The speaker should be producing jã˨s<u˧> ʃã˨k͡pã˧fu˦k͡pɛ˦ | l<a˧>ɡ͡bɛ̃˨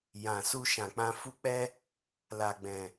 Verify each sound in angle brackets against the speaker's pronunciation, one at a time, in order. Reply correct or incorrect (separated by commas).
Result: correct, incorrect